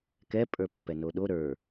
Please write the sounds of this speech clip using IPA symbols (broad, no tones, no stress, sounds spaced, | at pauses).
k ɛ pʼ ə˞ pː ɛ n o ɗ o ɾ ə˞